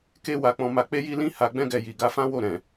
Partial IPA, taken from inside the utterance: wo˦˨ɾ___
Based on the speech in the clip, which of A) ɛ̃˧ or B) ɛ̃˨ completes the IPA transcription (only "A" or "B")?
B